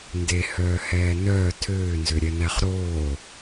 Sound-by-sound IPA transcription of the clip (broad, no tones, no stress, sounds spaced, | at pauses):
n d e h œː h ɛː n œ tʰ øː n z ø ɾʲ ɛ n æ χ ɾ oː